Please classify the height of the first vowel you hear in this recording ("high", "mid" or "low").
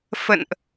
mid